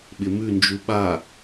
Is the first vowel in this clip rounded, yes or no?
no